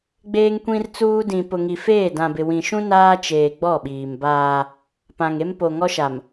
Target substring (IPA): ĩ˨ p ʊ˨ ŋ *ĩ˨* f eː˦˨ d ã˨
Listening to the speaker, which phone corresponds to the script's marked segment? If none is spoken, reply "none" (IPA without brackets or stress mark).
i˨